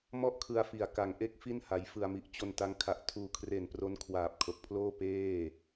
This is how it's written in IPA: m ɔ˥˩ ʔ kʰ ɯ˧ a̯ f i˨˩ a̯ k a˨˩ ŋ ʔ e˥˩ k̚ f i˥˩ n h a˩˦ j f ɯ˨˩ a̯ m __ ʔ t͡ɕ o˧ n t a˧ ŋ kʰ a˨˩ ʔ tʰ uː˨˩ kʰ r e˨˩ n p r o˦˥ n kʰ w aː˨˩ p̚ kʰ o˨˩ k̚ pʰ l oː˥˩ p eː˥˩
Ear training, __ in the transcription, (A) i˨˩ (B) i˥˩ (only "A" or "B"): A